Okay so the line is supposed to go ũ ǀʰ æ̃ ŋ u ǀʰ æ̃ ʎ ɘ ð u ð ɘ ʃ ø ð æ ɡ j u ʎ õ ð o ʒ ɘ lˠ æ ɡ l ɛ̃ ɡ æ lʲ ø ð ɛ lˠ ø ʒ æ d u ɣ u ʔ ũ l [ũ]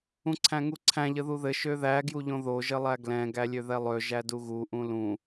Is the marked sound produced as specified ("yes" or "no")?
yes